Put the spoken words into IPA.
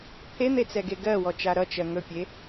t̪ʰ e n̪ e t͡s ɛ ɡ e ɡ ɜ w ɔ t͡ʃ a ɾ ʌ t͡ʃ ɜ ŋ ɵ pʲ e

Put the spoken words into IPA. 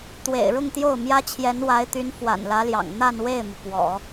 t̪ w ḛ˨˩ ɪ̯ ɻ ʊ˥˧ ŋ t̪ j o˥˩ ʊ̯ m j ä˥ t͡ɕʰ j ɛ˧˥ n w a˧˥ ɪ̯ t̪ y˧˥ n f w a̰˨˩ n l ä˧˥ l j ɑ̰˨˩ ŋ n̪ a˥˧ n w e˥˩ ɪ̯ m u˩ p w ɔ̰˨˩˦

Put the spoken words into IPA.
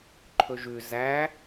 ǃʰ ɵ ʒ ʉ z æ

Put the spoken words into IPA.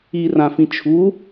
i r ã f ĩ t͡ʃʰ u

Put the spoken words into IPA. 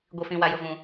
ɡʷ i˨ f ĩ˨ w a˨ j ʊ˨ v ũ˨

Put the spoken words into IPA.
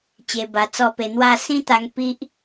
t͡ɕ e˧ b a˧ t͡s ɔ˥˧ p e˧ n̪ w a˥˧ s ĩ˦ t̪ a˧ ŋ p i˦ ʔ

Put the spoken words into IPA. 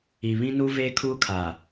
i˨ β ĩ˦ n u˦ v eː˦ kʰ uː˦ kʰ a˨

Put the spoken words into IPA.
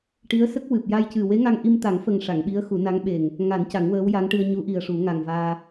ʈ i˧˥ ə̯ s ə˦˥ k̚ w ɨ˨˩ p̚ j a˧ j c ɨ˨˩ w e˧˥ ŋ a˧ ŋ ʔ i˧ m t̪ a˨˩˦ ŋ f ə˨˩ ŋ ʂ a˨˩˨ ŋ ɓ i˧˥ ə̯ x u˨˩˦ n a˧˥ ŋ ɓ e˨˩ ŋ | ŋ a˨˩˦ n c a˨˩˦ ŋ w əː˧˥ w j a˧˥ ŋ ʈ ɨ˧ ə̯ ɲ u˧˥ ʔ i˨˩ ə̯ ʂ u˨˩˦ ŋ a˨˩ ŋ v aː˧

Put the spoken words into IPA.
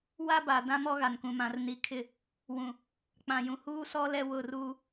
w a˦ b a˨ d ã˦ m ɔ˦ ɣ a˨ n k ũ˨ m ã˨ r n i˨ kʰ ɪ˦˨ | w ũ˨ | k͡p ã˨ j ũ˨ h uː˦ s ɔ˦ l ɛ˦ w ʊ˦˨ r uː˦

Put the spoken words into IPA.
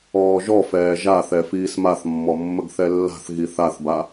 ɔː ʒ ɔ f ɛː ʒ a θ ɛ f iː s m a θ mː ɔ mː ə ɡ θ ɛ lː a̤ θ ɣ i θ a θ b a

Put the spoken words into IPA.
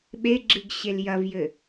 ɓ e ɡ͡ǁ ɨ ɡ ɕ e l j ɐ v j ɘ

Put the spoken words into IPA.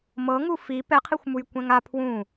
m ɤ ŋ u f i p ɛ qʰ i xʷ m u j kʷ ɛ̃ ŋ a pʰ w ũ

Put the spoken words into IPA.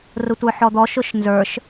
r ʊ tʷ ə˞ ħ ɔ d̪ ɔ ʃ ʊ ʃ n z ə˞ ʃ

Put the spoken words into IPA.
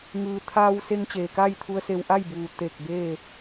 ŋ ɯː˩ t̪ʰ aː˧ w s e˧ ŋ t͡ɕ eː˩ k aː˥˨ j t̪ʰ u˧ ə̯ s e˧ w ʔ a˥˨ j b uː˩ t̪ e˧˩ k̚ b eː˥˨

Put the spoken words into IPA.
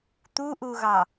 t̪ u ʔ u ɣ ɑ

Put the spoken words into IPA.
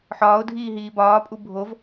ħ ɒː ʊ̯ dʱ iː ɦ iː b ɒː pʼ u bʱ o v

